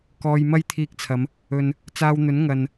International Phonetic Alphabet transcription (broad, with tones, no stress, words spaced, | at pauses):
kɔː˧j mɐ˥jt̪ʰiː˧k̚t͡sʰɐ˨˧m | ɵ˨n | t͡saː˧wn̪ɵ˨˥n ŋɐ˨n